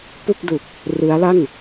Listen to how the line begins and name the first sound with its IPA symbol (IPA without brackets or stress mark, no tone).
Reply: p